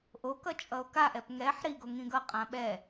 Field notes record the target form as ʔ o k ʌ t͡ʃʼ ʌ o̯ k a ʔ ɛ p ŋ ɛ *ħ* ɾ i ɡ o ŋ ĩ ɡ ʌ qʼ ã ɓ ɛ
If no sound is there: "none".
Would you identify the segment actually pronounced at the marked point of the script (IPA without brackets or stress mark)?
ħ